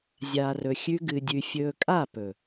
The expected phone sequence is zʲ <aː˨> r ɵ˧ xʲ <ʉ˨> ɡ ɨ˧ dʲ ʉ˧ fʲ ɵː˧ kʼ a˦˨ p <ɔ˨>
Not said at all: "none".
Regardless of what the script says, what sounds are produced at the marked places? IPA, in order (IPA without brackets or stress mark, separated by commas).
aː˧, ʉ˦, ɵ˨